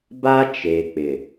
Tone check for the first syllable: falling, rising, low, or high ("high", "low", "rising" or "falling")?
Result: high